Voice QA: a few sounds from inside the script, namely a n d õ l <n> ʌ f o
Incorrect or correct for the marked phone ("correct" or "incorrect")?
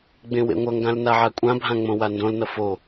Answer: correct